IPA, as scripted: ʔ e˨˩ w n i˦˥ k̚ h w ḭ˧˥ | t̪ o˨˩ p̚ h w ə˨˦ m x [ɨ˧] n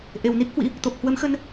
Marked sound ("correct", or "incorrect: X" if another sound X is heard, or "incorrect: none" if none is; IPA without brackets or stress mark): incorrect: ə˧